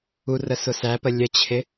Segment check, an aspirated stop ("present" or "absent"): present